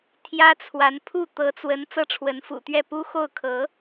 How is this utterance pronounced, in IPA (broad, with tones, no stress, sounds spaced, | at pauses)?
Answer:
t̪ʰ j ä˥ t͡sʰ w a˧˥ n pʰ u˥˩ t̪ ɤ˧˥ t͡s w ə˧˥ n t͡s ɤ˥˩ ʈ͡ʂʰ w ə˧˥ n f ṵ˨˩ t̪ ɥ ɛ˥˩ p u˥ x o˥˩ ʊ̯ kʰ ɤ˧˥